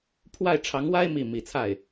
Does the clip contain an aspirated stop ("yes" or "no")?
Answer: yes